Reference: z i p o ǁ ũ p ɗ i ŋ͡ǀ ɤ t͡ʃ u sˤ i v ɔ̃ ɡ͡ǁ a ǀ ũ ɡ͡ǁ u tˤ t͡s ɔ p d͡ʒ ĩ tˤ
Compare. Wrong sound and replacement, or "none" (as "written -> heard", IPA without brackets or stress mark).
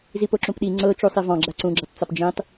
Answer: none